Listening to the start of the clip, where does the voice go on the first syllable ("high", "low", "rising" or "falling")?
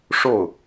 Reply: falling